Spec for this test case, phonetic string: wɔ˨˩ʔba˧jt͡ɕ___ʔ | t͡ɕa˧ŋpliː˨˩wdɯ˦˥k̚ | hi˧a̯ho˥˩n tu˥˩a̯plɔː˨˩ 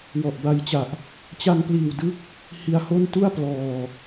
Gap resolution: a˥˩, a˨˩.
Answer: a˨˩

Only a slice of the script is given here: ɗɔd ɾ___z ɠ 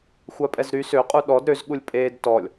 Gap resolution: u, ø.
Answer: ø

